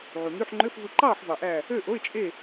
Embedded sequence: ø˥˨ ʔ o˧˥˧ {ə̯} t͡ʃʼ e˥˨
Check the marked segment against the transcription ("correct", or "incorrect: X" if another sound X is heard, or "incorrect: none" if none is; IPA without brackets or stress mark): incorrect: ɪ̯